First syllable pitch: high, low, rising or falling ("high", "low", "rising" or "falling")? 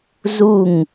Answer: falling